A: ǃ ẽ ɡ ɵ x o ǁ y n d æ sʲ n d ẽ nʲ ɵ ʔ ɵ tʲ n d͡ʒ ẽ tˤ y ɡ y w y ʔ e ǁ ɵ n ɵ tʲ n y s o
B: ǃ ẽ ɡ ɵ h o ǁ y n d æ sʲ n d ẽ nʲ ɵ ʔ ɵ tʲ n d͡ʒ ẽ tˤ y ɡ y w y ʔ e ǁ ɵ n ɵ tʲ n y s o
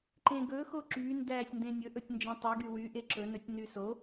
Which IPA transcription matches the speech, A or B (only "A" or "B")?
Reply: A